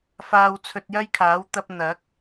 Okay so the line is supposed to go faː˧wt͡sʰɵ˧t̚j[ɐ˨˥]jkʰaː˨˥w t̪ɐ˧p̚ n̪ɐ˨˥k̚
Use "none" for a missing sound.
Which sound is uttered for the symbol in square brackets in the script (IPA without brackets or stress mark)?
ɐ˥